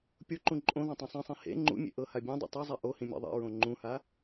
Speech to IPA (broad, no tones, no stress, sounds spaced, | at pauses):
pʲ o ǃ ũ ǃʼ õ ð ɔ̃ tˤ ẽ sˤ ĩ sˤ ẽ h ḛ ŋ͡ǃ ṵ mʲ ḛ ʔ ɤ h a bʲ ẽ dˤ ḛ tˤ ɯ zˤ ɛ ʔ o h ĩ mʲ ḛ ðˤ ḛ ɹ õ ŋ͡ǃ ũ h a